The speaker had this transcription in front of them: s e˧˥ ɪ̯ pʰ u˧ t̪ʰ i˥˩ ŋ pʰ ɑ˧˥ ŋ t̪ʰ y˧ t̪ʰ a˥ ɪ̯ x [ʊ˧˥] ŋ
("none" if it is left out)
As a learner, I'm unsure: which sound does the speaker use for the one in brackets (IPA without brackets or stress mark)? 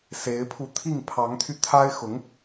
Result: ʊ˧˥